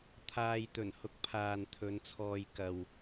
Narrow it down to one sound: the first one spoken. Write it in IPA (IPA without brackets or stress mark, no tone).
t̪ʰ